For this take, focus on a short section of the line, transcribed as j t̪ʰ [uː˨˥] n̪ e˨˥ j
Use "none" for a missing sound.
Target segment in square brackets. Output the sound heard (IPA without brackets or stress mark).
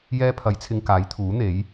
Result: uː˨˥